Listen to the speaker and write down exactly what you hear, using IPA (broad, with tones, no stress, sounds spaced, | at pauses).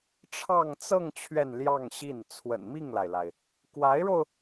ʈ͡ʂʰ ɑ˥˧ ŋ t͡s ɤ˥˧ ŋ t͡ɕʰ ɥ ɛ˥˧ n l j ɑ˥˧ ŋ ɕ i˥˩ n t͡sʰ w ə̰˨˩ n m i˥˩ ŋ l a˩ ɪ̯ l a˩ ɪ̯ | k w a˧˥ ɪ̯ ɻ o˧ ʊ̯